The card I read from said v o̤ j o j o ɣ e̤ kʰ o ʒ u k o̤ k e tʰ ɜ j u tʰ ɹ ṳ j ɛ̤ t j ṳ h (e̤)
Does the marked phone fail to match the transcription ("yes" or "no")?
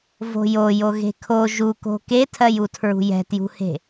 no